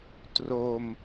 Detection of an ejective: absent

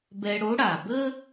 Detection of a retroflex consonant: present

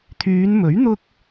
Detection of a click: absent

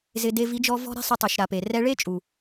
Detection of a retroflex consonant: present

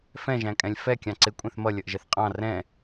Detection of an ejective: present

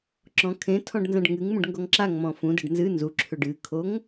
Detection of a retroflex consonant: present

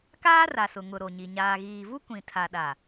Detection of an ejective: absent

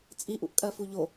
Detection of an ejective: present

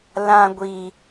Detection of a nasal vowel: present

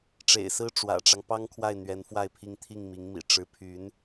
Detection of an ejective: absent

